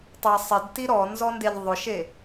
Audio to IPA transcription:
tˤ ɛ sˤ ɪ d t i ɾ ɔ n z ɔ n d e ʎ ðˤ ʊ ʃ e

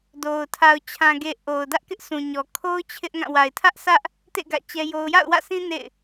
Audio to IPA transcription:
d o˨ ʊ̯ tʰ a˨ ʊ̯ t͡ɕʰ ã˨ ɡ e˨ ʔ o˨ ʊ̯ d ä˦ ʔ k ɪ˦ ʔ sʰ ũ˨ ɲ ɔ˨ kʰ o˦ ʊ̯ t͡ɕʰ ɪ˦ ʔ ŋ ã˦˨ w a˨ ɪ̯ tʰ ä˦ ʔ s ä˦ ʔ | t ḛ˦˨ ɡ ä̰˦˨ t͡ɕ ɛ˦ j o˦ ʊ̯ j a̰˦˨ ʊ̯ w ä̰˦˨ sʰ ĩ˦ n ḛ˦˨ ɪ̯

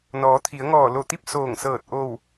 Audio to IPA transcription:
n ɔː˩˧ t̪ʰ i˩˧ ə̯ ŋ ɔː˧˩ l o˧˩ t̪ i˥˨ p̚ s oː˧˩ ŋ s ɤː˧˩ t̚ ʔ o˧˩ w

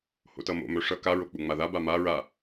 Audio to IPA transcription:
h o̰ t ʌ m o̰ m œ ʂ ʌ k a ɹ o k͡p u ŋ͡m a ð a b a m a ɹ a

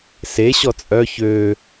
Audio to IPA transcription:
s e ɕ ɔ t͡sʼ œ ç ø

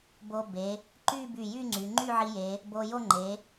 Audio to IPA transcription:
b o˧ b e˩˧ | ǃ y˥˧ b y˧˩ j y˥˧ ŋ͡ǀ y˩˧ ŋ͡ǃ y˥˧ ʕ i˧ j e˩˧ | b o˧ j o˥˧ ŋ͡ǃ e˩˧

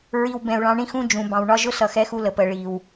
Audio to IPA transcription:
ɹ i˨ w b ɛ̃˨ u̯ ɭ ɑ̃˨˦ ɳ ĩ˦ x ũ˦ d͡ʒ ũ˨ b ɑ̃˨ w ɳ ɒ˦ ʒ ʊ˦ s ʌ˨ x ɛ˦ x u˦ l ə˨ p əː˨ ɭ iː˨ w

